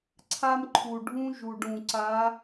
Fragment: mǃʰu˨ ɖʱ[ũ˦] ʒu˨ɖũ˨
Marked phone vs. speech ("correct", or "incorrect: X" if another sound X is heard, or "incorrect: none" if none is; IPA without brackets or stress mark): correct